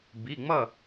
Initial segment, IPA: b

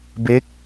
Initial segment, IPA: b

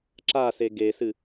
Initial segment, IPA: ǁ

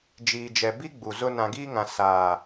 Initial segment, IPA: d͡ʒ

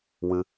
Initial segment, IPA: w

